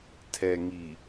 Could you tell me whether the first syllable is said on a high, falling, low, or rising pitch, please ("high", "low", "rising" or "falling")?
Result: low